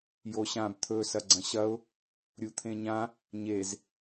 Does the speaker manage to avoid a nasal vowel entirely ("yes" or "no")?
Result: no